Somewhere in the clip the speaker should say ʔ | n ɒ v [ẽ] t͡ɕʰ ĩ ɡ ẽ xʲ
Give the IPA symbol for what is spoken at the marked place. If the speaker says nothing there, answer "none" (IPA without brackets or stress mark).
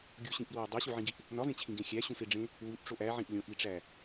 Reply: ẽ